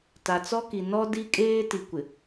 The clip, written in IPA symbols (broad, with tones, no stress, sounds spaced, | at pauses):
t a˨ t͡s ɔ˦ k i˨ n ɔ˦ d i˦ kʼ eː˦ t i˨ kʷ ɪ˨